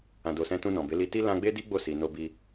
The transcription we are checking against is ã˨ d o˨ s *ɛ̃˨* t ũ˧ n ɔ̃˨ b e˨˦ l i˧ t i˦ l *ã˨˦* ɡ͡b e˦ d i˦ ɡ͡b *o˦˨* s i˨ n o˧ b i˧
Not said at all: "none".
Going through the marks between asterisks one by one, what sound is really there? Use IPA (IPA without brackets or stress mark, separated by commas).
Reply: ɛ̃˧, ã˧, o˦˨